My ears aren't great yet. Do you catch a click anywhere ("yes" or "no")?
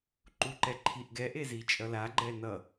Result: yes